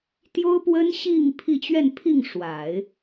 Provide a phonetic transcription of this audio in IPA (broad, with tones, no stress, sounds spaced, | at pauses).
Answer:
t̪ j o˥ ʊ̯ p w ə˥ n ɕ i˥˧ ŋ pʰ i˥˧ t͡ɕ ɥ ɛ˥˧ n pʰ i˥˩ ŋ ʂ w a˨˩˦ ɪ̯